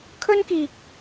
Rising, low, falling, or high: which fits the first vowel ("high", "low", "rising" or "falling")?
high